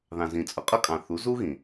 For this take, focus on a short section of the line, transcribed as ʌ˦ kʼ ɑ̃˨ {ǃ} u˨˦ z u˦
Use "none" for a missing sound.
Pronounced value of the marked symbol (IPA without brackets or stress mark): θ